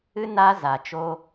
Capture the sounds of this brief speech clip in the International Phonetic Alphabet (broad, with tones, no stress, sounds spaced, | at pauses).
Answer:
ɨ˦ n a˧ z a˨ t͡ʃ o˦